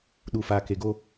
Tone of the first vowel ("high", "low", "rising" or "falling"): low